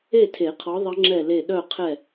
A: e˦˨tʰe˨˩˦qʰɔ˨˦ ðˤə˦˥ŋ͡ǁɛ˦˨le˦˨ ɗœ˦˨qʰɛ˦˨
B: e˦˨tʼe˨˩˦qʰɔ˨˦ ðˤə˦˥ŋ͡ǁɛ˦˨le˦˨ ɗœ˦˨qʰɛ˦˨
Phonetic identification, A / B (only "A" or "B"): A